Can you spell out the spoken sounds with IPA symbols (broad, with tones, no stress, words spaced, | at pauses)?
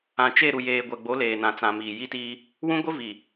ã˨t͡ʃe˦˨ ɾu˨jeː˨ɡʷɛ˨ɡ͡bo˨˦ leː˨nã˨t͡sã˨ miː˨ji˦tiː˦ | wũ˦ɡʷɪ˦ vi˨